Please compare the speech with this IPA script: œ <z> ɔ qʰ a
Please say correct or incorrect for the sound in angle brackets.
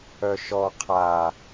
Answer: incorrect